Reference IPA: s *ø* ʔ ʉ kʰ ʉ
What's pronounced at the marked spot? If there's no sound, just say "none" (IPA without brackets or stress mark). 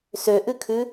ø